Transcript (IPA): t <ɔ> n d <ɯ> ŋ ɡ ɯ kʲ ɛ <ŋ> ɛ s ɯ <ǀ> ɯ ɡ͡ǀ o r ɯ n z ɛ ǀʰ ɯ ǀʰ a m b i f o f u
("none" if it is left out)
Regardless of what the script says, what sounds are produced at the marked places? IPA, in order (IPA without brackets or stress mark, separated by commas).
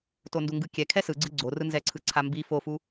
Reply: o, u, kʰ, ɡ͡ǀ